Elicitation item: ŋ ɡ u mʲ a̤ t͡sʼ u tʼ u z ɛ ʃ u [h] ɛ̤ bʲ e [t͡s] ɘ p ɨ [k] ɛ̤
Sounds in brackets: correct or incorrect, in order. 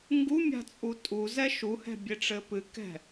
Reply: correct, incorrect: ʈ͡ʂ, correct

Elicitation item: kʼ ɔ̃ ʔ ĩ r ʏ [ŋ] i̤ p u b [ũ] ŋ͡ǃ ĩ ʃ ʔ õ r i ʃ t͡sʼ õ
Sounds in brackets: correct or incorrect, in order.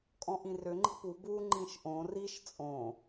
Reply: incorrect: ŋ͡ǃ, incorrect: u

